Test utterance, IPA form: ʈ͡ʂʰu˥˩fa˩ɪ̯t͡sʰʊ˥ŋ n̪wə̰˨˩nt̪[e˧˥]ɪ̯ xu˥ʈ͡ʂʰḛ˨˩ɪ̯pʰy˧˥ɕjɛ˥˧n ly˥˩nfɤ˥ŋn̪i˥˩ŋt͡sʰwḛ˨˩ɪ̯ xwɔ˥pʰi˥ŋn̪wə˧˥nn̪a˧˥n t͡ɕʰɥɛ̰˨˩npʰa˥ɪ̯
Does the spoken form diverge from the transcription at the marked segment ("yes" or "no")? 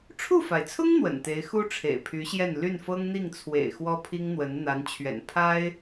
no